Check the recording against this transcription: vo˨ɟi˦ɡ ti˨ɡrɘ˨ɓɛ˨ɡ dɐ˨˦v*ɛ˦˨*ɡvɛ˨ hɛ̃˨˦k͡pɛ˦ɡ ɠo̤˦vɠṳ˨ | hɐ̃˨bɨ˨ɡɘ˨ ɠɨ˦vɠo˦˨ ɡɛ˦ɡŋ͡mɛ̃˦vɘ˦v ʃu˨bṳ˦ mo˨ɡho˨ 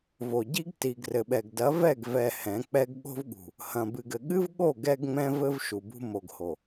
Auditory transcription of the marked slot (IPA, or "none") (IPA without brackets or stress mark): ɛ˦˨